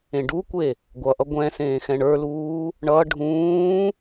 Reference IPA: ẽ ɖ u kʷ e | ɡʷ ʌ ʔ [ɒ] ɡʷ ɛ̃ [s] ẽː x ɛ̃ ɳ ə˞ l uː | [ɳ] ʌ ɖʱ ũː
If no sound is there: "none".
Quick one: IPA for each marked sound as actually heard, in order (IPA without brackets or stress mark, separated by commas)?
ʌ, s, ɳ